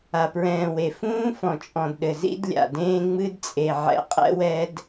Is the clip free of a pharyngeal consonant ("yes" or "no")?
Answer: no